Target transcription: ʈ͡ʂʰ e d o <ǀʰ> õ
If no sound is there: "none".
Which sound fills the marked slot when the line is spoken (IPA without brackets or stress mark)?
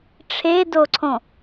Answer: ǀʰ